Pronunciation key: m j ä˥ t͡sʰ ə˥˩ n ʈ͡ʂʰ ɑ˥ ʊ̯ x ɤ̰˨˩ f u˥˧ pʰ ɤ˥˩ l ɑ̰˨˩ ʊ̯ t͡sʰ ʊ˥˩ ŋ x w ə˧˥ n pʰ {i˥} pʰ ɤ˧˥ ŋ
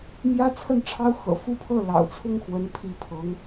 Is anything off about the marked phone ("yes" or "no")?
yes